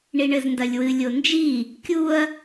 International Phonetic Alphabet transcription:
ɳiɳɘzndɐlʲwɨ lʲond͡ʒi | kʲuɐ̯

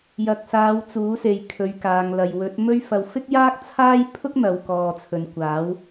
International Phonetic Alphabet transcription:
jɐ˨k̚saː˨˧w t͡suː˨˥se˨j kʰɵ˨˧ɥkaː˨ŋlɐ˨j wɵ˨˥t̚mɵ˥ɥfɐ˧w fɪ˥k̚jaː˥k̚t͡sʰaː˥j pʰʊ˥k̚ n̪ɐ˨˧wkɔː˨t͡sʰɵ˨nkʷaː˨˥w

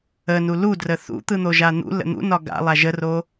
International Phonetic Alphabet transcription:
ənu ludrə θṵt̪ɯn̪oʒa n̪ṵlə̰ n̪ṵnɒ ɡa̰lˠa ʒəro

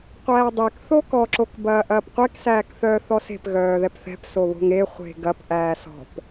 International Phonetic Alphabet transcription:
qʷæːdˤek θokɔ ǁokbɐːʔɐːpqʷek sæːkθœːθɔse̤p ɣœːðɛpθɛ̤p soβo̤ŋe χʷe̤ɡɐp ʔæːsɔ̤p

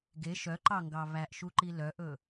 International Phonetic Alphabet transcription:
ɡe ʃœǃɑŋɡɑ βæʔʃuǃi lœʔɵ

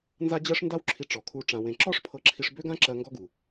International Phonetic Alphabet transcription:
nza˥ d͡ʑɜ˥ʂnda˥wǁʰi˧ ʈ͡ʂɔ˩kʰu˧ ʈ͡ʂã˧wẽ˧ ǁɔ˥ʂpʰɤ˧ǁʰi˧ʂ bø˥ɡã˥ǁɜ˧ ŋɡɔ˥ɡu˩

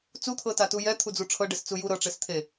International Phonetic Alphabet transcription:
t͡sut̪ʰɤtatu jɛt̪ʰud͡zu ʈ͡ʂʰɤɖest͡su ju ɾɤʈ͡ʂes t̪ʰe

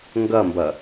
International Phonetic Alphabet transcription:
ŋɡʌmbʌ

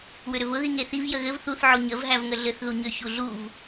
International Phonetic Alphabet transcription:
wʏɾʏvʊ ðiŋeθiv jəɣɘv θuθ ʕoɲəv ɦævŋəɮɘθ ðuɲʏ çuɮuv

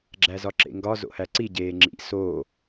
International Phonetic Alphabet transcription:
ɡ͡ǁæzɒǁḛŋɡɒ zo̰hæǀi ɟeːŋ͡ǁḭ soː

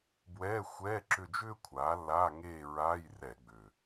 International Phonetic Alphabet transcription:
bwɛː˧˥˧xʷɛː˧˥˧ǁʏ˦˨ d͡ʒʏː˥kʷʰaː˩˥lːaː˧˥˧ ŋeː˦˨ ɹaː˧˥˧jrɛ˧˩˧ɡ͡bʏ˨˩

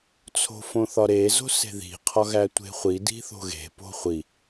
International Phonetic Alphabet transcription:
t͡sʰo̤fõθɒɾe zo̤se̤ði̤ qʰɒɣætʷe̤χʷi di̤θo̤ɣe̤ po̤χʷi

